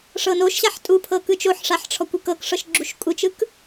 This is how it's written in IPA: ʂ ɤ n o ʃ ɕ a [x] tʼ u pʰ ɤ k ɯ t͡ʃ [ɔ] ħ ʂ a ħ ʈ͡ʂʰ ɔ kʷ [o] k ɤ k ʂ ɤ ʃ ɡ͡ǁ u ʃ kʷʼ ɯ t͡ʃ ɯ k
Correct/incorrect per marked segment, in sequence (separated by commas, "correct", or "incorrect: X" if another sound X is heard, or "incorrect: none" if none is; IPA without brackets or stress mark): incorrect: ħ, incorrect: o, incorrect: u